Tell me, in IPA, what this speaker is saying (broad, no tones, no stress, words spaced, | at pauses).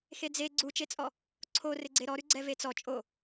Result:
xed͡ze ɡ͡ǀut͡ʃet͡sʼɔ | ǀʰorɪɡ͡ǀe ɾɔ ɾʉɡ͡ǀɛvet͡sɔ t͡ʃʼo